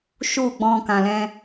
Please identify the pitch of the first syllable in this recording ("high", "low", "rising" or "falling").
falling